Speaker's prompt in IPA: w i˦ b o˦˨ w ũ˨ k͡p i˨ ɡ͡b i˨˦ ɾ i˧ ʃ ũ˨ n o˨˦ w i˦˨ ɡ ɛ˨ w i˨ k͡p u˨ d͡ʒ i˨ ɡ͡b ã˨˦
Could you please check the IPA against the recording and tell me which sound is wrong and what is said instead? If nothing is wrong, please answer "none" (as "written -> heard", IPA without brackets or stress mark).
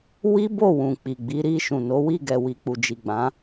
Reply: none